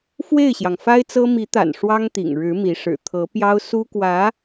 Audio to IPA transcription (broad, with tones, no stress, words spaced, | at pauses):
fwe˥˩ɪ̯ɕjɑ˩ŋ fa˥ɪ̯t͡sɤ˥ mi˧˥t̪a̰˨˩n ʂwɑ˥ŋt̪ḭ˨˩ŋ ɻɻ̩˧˥mi˧˥ ʂɻ̩˨˩ t̪ʰɤ˧˥ pjɑ˥ʊ̯ su˥kwä˧˥